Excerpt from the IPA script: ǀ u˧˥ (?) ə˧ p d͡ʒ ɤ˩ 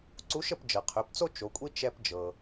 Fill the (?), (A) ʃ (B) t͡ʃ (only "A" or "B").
A